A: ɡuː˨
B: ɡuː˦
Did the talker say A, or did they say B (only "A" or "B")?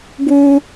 B